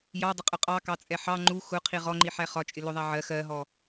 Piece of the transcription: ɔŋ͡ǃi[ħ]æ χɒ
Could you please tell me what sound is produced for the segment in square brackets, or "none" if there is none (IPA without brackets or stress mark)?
ħ